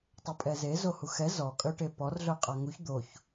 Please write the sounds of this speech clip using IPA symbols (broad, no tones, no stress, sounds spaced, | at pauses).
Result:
tˤ o pʼ ɛ z e z o h u x ɛ z ɔ kʼ œ ʈ e p ɔ r ɮ œ qʼ a ŋ u ç d̪ o ç